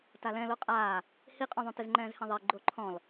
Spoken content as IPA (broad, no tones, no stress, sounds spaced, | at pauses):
t a l ɛ̃ l o qʼ aː | h i qʼ õ ðˤ ũ t ɪ z ŋ͡ǃ ɛ̃ː z h ẽ ðˤ e ɡ͡ǃ o ǃʰ ɔ̃ l